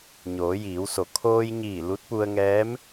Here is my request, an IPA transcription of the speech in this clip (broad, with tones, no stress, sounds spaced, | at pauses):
ɲ oː˩˧ j iː˩˧ w s o˩˧ kʰ oː˧ j ɲ iː˧˩ l u˧˥ t̚ p u˧ ə̯ ŋ ɛː˧˥ m